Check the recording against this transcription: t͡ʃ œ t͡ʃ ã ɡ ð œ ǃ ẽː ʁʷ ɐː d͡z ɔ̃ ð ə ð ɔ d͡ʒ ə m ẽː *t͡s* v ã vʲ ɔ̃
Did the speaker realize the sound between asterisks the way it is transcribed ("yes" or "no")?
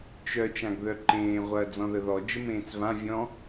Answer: yes